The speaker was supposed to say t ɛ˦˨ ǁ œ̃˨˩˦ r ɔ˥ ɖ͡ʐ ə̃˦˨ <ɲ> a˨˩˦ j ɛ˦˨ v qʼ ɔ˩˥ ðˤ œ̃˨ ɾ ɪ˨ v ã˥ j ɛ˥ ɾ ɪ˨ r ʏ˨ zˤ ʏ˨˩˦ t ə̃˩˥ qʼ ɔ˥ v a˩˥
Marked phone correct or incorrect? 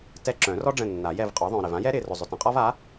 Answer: incorrect